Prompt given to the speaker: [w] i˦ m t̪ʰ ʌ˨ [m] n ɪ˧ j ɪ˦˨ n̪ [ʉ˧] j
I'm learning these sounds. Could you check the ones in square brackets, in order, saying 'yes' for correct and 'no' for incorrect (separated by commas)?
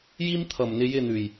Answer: no, yes, no